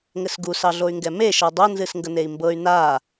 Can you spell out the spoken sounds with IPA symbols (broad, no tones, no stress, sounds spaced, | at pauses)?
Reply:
ŋ ɘ s ɡ u s ɑ ɮ o y̯ ŋ ɡ ɛ m e ʃ ɤ dˤ o n z ɨ s ŋ ɡ ə n e i̯ m b ɤ y̯ n a